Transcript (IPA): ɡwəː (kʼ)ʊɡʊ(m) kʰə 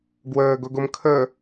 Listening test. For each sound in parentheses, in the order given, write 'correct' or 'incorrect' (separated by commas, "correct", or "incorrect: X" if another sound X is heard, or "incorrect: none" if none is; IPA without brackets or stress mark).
incorrect: ɡ, correct